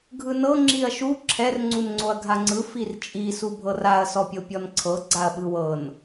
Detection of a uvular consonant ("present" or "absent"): absent